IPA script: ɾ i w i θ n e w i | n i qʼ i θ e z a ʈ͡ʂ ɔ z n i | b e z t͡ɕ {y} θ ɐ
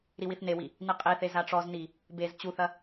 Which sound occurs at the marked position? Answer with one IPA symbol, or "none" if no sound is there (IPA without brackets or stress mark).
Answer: u